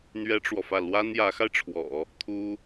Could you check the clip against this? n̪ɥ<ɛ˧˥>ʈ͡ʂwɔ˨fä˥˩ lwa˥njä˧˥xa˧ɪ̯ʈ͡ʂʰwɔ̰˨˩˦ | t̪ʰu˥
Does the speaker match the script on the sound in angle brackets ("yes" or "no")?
no